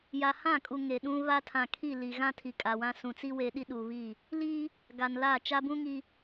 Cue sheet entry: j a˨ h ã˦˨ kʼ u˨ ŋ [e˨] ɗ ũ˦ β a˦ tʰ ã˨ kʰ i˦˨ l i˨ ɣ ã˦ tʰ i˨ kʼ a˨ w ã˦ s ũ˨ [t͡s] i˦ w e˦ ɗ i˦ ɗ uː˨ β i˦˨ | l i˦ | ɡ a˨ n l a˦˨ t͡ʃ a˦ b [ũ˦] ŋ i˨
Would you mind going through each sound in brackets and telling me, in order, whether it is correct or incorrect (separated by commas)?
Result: correct, correct, correct